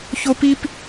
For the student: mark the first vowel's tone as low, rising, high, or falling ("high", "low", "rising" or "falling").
high